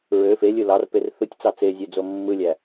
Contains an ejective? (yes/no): no